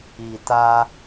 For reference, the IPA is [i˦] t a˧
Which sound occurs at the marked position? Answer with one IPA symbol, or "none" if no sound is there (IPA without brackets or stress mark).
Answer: i˨